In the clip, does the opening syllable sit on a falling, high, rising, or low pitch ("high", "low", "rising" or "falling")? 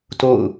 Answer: falling